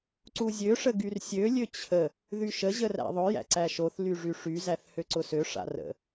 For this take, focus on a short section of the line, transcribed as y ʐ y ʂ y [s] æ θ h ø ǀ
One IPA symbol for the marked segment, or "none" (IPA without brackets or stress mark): z